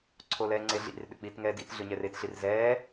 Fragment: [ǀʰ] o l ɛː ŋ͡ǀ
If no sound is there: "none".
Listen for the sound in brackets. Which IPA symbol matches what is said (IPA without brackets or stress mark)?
ǀʰ